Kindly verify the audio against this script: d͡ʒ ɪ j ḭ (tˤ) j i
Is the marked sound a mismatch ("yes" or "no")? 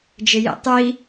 no